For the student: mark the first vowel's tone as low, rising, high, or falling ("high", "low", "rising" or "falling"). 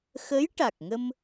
rising